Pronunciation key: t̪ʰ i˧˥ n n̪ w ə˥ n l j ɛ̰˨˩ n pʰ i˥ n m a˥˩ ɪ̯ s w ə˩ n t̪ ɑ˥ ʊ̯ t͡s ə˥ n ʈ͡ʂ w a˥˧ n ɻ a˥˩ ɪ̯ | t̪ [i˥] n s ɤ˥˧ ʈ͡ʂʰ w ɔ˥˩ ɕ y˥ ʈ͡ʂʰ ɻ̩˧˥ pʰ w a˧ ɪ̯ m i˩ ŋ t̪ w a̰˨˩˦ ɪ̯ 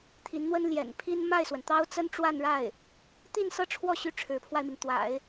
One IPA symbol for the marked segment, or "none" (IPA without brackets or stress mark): i˥˧